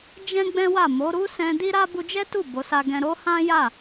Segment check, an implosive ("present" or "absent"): absent